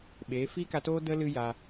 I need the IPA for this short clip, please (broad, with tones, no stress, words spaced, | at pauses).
ɓeː˨˦ fiː˦ka˧toː˦ də˦ lɨ˦ja˧